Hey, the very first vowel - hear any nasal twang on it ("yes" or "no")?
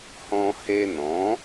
yes